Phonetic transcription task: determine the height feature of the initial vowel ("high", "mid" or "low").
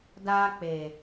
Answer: low